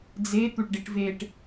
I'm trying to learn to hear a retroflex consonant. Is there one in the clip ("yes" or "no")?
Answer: yes